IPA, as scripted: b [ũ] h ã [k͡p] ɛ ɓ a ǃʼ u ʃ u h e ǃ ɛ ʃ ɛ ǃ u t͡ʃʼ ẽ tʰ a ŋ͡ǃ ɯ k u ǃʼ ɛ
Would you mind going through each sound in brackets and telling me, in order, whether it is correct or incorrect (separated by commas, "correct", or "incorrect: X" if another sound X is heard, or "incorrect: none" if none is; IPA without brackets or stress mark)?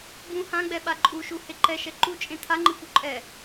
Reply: correct, incorrect: ɡ͡b